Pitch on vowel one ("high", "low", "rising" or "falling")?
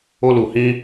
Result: high